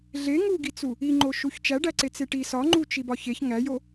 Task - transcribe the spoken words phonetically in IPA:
ɮe ŋuɡit͡su | iŋ͡ǃoʃuç t͡ʃæɖæǀe t͡seʈi sɒŋ͡ǃut͡ʃi bɒçeç ŋæjo

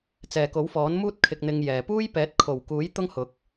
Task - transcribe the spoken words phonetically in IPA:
t͡sɛː˨ko˨˥wfɔː˨˥n muː˥t̚ kʰɪ˧k̚n̪ɪ˧ŋjɛː˨ puː˥jpɛː˨˥t̚kʰo˨˩wkuː˨˥j t̪ʊ˥ŋhʊ˨˥k̚

